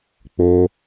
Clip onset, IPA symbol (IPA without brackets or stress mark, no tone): k͡p